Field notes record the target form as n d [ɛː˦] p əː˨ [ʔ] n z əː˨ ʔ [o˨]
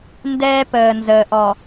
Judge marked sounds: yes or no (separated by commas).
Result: yes, no, no